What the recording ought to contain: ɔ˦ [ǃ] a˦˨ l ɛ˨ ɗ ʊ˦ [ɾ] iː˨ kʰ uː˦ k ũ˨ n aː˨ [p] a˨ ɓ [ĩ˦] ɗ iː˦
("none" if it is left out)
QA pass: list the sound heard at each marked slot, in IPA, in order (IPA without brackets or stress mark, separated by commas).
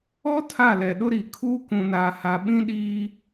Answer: tʰ, ɾ, h, ĩ˦